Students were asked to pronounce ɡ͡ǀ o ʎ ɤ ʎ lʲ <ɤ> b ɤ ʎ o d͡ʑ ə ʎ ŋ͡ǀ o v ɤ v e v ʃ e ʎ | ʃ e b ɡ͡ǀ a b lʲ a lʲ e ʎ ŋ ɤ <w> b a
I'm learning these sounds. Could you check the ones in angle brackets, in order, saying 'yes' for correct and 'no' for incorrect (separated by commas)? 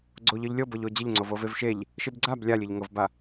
yes, no